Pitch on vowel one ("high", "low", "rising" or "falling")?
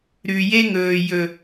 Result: low